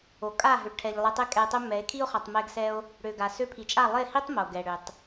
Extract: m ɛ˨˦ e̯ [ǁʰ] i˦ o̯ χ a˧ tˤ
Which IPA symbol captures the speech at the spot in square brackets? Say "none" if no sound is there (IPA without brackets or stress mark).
kʰ